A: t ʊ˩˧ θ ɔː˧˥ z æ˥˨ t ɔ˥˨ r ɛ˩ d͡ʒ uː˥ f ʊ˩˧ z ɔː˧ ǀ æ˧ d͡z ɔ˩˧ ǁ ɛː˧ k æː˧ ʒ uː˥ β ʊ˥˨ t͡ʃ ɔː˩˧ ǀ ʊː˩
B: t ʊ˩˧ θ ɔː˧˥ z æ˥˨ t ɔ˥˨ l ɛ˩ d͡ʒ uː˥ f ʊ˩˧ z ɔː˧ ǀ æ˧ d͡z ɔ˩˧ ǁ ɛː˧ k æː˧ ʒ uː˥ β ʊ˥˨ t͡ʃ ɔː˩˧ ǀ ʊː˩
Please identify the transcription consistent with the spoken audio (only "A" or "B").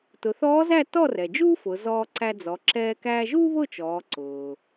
A